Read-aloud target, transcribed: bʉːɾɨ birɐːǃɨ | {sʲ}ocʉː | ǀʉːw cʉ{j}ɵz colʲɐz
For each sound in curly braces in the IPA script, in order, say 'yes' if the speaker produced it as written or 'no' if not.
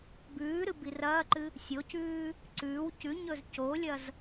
yes, no

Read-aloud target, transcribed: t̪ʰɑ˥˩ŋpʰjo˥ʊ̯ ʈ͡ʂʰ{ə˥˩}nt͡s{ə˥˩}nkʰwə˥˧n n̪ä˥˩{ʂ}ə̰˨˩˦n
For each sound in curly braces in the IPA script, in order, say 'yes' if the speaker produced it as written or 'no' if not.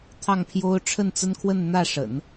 yes, no, yes

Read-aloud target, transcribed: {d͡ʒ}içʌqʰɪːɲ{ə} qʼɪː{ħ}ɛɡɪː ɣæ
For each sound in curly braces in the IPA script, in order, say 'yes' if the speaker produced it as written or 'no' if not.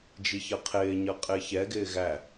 yes, no, no

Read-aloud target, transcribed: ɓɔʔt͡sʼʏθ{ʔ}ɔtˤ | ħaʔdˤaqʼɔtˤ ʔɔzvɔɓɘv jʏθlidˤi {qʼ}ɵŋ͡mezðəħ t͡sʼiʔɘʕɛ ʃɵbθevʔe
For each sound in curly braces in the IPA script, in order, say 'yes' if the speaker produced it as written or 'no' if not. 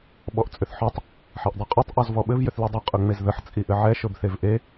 no, yes

